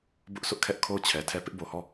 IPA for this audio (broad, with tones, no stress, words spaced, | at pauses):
bʊ˦ʔsʊ˦ʔkʰɛ˦ʔ kʰo˦˨ʊ̯t͡ɕʰɛ˨tʰɛ˦˨ pɪ˦ʔ bo˨hɔ˦˨